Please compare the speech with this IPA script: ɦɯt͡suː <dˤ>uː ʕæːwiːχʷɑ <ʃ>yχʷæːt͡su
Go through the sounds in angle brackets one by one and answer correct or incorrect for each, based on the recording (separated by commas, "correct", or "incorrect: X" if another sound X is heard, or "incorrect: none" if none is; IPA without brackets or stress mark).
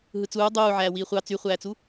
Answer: correct, incorrect: t͡s